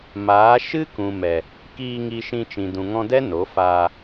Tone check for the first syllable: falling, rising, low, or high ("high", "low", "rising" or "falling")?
rising